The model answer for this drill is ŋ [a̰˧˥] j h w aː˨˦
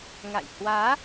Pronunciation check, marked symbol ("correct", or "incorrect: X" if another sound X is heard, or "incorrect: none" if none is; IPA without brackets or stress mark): incorrect: a̰˧˨